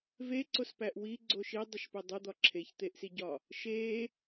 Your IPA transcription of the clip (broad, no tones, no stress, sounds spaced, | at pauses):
v e ǀ o s p æ ʔ w i ɡ͡ǀ o ʃ i dˤ o ʃ p e dˤ u d̪ ɒ ǁʰ e ç t̪ e ʔ s i ɟ ɒ | ʃ e